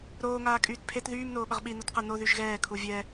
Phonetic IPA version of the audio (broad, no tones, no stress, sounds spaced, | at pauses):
ɾ oː ŋ aː kʼ yː t pʰ e t ð yː m n oː ɓ ə ʁ ɓ i n o t q ə n o ð y ʒ ɣ ɛː kʰ u vʲ ɛ